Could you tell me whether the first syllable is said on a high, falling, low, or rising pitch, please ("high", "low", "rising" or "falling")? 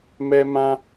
high